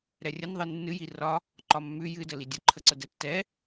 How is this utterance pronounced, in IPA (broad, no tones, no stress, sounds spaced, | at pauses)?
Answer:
ɾ ɛ rʲ ə n ðˤ ɨ nː ɨ j i r ɒ | ǃ ɒ mː ʉ j ɨ d ə l i dʲ ə ǃʰ ə ǀ ə d ɛ tː ɛ